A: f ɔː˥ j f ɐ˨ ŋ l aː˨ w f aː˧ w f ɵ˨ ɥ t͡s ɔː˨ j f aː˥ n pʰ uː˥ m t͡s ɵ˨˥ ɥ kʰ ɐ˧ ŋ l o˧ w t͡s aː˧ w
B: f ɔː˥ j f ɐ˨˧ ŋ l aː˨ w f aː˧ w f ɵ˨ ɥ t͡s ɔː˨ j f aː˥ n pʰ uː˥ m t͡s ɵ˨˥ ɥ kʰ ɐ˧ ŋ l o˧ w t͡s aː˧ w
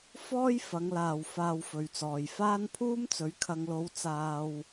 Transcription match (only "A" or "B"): B